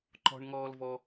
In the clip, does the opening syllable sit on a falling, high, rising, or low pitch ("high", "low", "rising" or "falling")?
high